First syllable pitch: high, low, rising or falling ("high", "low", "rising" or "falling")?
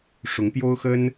rising